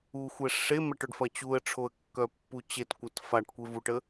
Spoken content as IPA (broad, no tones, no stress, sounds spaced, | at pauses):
u xʷ ɛ ʂ e m ɛ ʈ œ ɖ f ɐ t͡ɕ u ə̯ ʈ͡ʂʰ o ə̯ kː œ pː u t͡ɕ e t kʷ ɐ t f a ʈ kʷ e v u ʈ ə